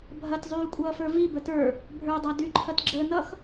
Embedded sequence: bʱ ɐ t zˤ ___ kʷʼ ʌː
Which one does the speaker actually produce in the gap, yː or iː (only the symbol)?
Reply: yː